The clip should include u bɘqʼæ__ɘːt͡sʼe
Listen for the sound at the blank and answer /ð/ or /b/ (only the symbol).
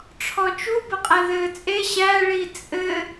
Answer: ð